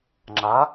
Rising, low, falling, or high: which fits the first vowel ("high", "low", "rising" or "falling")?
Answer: rising